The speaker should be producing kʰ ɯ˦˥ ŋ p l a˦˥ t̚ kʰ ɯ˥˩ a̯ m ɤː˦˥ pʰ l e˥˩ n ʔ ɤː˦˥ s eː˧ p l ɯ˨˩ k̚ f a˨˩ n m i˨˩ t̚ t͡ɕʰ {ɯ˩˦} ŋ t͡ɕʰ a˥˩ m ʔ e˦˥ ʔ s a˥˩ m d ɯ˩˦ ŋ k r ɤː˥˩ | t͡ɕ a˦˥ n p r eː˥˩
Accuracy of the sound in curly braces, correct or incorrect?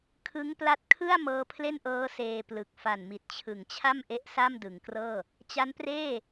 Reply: correct